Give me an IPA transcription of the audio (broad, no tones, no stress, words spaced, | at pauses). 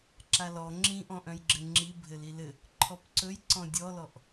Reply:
ǁalɔ ŋ͡ǁĩʔɔ̃ʔœ̃jɡ͡ǁɘ ŋ͡ǁi bʱɘlilɘ | ǃʰɔpǀɵjǀɔ̃ dʲɔlɔʔ